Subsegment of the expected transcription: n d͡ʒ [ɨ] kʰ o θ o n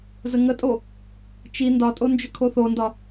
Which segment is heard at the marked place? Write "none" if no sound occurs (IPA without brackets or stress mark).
ʏ